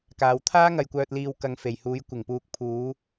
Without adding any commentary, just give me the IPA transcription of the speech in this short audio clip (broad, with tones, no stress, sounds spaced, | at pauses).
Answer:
k aː˨ w t̪ʰ aː˥ ŋ ɐ˨ j kʷ œː˨ t̚ l iː˨ w k ɐ˨ ŋ f e˨˩ j h uː˨˧ j kʷ ɪ˨˩ ŋ p uː˨ k̚ pʰ uː˨˧